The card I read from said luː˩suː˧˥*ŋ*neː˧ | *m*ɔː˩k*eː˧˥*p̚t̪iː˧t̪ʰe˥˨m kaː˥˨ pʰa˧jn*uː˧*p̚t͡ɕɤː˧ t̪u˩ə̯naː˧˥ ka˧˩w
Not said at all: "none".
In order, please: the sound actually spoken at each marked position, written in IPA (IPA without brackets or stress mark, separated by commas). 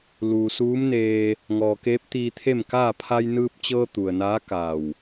m, ŋ, eː˧˥, ɯː˧